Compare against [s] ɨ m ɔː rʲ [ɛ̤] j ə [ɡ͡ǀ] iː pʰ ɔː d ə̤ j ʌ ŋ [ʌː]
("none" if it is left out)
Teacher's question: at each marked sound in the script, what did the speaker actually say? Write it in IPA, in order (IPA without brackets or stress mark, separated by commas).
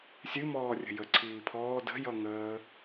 sʲ, ə̤, ǀʰ, əː